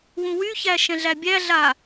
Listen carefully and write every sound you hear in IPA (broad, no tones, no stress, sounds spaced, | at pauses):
w ũ w y ç æ ʃ ɛ̃ ɮ æ bʲ æ ɮ a